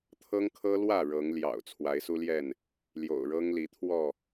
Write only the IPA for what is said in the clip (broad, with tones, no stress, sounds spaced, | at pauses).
t̪ʰ ɤ˦ ŋ kʰ ɤ˦ l w ä˥˨ ɻ ɤ˨˦ ŋ l j ɑ̰˨˩ ʊ̯ t͡sʰ w a˨˦ ɪ̯ s u˦ l j ɛ˥˨ n | l j o̰˨˩ ʊ̯ ɻ ɤ˦ ŋ l i˨˦ t̪ʰ w ɔ˥˨